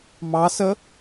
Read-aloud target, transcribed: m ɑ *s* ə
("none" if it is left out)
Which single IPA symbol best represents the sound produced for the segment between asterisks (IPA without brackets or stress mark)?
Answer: s